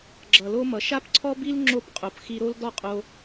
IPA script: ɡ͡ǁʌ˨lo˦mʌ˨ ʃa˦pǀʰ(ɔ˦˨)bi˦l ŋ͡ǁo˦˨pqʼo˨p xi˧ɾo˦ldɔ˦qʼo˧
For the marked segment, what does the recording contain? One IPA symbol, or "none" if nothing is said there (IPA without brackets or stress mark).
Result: ɔ˦